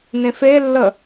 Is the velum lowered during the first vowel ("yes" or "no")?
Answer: yes